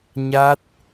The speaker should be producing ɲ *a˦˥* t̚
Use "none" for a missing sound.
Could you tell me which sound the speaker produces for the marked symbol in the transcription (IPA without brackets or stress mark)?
a˦˥